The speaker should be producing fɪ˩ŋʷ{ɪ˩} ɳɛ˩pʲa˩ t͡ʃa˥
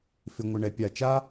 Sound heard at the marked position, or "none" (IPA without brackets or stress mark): ɪ˩